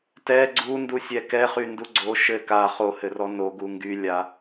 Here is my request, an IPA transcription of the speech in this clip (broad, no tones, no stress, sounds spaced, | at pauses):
t ɛ ɡ͡ǀ u n d u sʲ ɛ k ɛ χ y n d u ɡ͡ǀ o ʃ ɘ k a χ o h ɘ r ɔ n o ɡ u ŋ ɡ y lʲ a